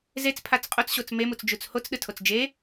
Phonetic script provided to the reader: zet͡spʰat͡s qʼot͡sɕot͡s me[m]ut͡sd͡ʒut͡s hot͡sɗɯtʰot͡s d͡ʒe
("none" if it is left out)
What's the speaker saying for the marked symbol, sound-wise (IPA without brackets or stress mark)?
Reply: m